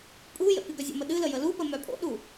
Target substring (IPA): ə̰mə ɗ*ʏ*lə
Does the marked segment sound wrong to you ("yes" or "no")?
yes